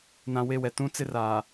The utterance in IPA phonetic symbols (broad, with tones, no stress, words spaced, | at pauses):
nã˨we˦˨wɛ˨ tũ˦t͡sɪ˦ raː˨